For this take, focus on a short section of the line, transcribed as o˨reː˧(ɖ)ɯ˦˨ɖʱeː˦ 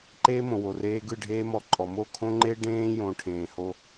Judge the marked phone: incorrect: ɡ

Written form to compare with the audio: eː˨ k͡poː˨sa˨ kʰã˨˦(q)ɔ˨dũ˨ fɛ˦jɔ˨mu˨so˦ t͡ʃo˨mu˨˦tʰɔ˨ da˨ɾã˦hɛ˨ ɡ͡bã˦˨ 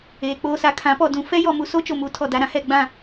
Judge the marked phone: incorrect: p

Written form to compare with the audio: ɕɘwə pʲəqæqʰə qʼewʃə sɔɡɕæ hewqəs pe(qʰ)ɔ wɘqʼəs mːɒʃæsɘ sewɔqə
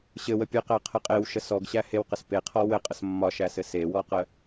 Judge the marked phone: correct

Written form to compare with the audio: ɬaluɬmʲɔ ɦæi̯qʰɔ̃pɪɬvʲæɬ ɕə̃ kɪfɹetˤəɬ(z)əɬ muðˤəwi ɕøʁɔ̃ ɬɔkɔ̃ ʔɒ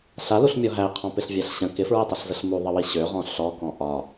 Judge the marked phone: correct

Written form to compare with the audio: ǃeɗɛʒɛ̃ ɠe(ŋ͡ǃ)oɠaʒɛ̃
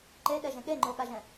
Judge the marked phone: correct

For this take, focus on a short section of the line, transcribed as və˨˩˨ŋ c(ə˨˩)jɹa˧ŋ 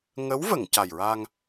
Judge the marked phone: incorrect: a˨˩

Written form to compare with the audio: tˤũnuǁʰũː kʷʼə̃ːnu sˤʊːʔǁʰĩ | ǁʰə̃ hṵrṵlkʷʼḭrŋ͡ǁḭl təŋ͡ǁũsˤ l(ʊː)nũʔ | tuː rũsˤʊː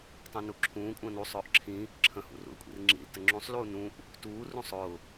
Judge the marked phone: incorrect: uː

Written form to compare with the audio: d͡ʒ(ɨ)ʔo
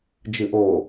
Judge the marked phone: correct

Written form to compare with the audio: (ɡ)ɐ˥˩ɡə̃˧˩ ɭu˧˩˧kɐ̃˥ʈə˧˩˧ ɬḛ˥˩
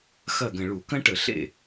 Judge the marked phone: incorrect: x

